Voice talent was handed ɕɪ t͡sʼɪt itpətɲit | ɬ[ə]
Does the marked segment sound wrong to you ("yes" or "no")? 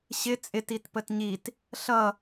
yes